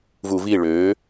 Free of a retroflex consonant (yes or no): no